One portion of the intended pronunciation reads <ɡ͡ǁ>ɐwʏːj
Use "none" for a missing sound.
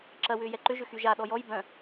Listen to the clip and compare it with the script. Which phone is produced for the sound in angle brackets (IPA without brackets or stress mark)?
ǁ